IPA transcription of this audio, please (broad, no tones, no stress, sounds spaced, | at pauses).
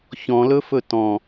ç ɔ̃ l ɵ f ɵ t ɔ̃